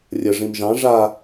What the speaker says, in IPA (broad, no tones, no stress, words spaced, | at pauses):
rʲə ʐĩmʒɑ̃ ʐa